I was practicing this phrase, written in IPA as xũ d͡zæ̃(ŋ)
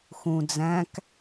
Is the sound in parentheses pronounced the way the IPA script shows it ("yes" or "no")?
no